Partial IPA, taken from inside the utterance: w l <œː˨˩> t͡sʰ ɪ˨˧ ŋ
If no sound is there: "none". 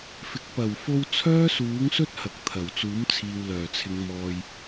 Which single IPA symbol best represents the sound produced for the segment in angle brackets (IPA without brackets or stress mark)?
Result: œː˨˩